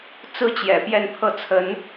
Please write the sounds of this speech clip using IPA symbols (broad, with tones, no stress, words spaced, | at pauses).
t͡sɹ̩˥t͡ɕjɛ̰˨˩ pjɛ˥˧npʰɤ˥˩t͡sʰə˧˥n